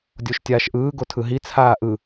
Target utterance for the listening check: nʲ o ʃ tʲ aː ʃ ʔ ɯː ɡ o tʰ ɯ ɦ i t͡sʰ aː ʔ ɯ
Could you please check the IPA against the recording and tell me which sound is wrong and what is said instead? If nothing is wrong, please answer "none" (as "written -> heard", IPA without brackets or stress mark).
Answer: nʲ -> dʲ